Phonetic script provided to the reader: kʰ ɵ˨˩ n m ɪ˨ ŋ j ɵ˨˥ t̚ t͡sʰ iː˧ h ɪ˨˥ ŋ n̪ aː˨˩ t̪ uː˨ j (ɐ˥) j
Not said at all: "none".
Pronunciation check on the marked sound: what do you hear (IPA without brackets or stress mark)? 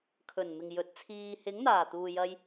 ɐ˧